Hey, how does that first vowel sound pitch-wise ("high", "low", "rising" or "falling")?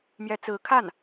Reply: rising